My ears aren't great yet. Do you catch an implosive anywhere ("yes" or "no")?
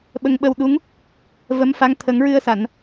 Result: yes